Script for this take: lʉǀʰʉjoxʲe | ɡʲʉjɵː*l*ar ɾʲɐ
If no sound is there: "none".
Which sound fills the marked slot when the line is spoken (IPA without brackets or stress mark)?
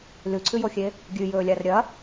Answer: lʲ